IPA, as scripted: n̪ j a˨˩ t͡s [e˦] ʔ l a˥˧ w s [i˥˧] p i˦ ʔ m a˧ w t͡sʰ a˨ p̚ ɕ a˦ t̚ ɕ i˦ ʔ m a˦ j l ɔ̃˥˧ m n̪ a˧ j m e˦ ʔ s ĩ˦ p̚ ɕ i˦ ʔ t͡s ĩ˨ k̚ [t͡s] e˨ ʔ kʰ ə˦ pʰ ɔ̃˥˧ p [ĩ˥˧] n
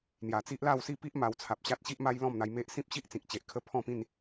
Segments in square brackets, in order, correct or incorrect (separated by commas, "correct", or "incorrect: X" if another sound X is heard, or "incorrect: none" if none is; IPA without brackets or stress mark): incorrect: i˦, correct, incorrect: t͡ɕ, correct